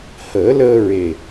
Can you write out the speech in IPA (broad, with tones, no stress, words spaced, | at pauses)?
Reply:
həː˨˩˦ləː˧ɹe˨˩